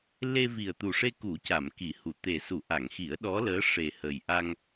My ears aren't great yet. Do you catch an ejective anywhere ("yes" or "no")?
no